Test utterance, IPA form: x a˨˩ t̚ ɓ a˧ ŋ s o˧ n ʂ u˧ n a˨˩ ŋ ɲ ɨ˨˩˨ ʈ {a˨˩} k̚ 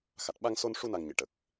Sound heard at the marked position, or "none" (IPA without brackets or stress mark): ə˨˩